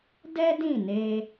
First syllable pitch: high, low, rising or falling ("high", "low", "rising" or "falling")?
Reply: high